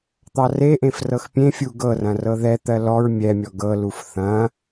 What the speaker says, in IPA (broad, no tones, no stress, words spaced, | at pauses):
t̪ɑreʔẽf rɤxpʲẽfʲu ɡɤrɐ̃ rɤðɛt̪ɜ lɔɹ mʲɛmʲɔ ɡɤluf θɐ̃